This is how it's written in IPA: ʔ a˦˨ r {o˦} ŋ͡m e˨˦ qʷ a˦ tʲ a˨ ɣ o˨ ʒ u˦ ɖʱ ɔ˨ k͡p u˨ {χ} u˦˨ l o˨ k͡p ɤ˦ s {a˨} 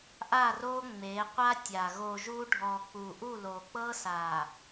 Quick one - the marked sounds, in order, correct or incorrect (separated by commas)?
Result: correct, incorrect, correct